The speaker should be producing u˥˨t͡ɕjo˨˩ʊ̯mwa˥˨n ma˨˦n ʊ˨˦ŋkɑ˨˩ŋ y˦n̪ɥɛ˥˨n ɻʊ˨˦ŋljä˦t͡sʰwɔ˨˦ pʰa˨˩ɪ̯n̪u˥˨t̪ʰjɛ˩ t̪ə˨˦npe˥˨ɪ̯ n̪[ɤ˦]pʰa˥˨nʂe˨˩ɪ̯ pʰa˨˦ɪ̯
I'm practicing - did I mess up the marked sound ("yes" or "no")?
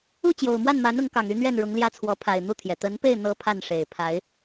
no